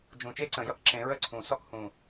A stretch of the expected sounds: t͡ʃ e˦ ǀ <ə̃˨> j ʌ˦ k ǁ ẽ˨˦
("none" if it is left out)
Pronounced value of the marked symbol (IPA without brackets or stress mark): ə̃˨